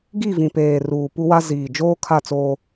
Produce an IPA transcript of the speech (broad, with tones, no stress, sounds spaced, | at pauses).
ɡ i˦˨ v ĩ˨ p eː˨ r uː˨ p u˦ w a˦ z iː˨ d͡ʒ oː˦ kʰ a˦˨ t͡s oː˦